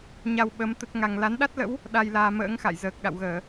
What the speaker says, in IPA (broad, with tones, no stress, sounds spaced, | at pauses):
ɲ a˧ w ɓ ə˨˦ m t̪ ə˦˥ t̚ ŋ a˧ ŋ l a˨˦ n ɗ a˦˥ t̚ l ə̰˧˥ w | ɗ a˧ j l aː˧ m ə̰ː˧˥ ŋ x a̰˧˨ j z əː˨˩ k̚ ɗ a̰˧˨ w ɣ əː˧˩˨